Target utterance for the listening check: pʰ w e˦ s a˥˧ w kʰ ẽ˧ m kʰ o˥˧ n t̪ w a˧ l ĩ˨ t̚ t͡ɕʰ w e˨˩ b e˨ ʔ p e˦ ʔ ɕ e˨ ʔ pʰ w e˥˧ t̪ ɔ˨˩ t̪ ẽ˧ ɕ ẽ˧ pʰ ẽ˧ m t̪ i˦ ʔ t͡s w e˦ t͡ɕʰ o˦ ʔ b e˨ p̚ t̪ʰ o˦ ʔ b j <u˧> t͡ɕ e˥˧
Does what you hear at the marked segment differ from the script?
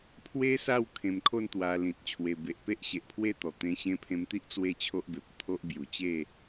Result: yes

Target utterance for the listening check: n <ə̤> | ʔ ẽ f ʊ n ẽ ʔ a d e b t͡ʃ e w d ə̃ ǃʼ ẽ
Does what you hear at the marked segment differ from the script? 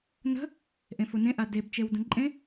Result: no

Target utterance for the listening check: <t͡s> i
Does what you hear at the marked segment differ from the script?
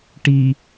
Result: yes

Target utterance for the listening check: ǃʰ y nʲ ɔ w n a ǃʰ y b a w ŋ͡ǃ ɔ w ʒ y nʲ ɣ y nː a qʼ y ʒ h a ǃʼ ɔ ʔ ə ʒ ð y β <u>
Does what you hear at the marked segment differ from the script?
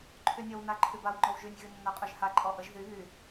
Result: yes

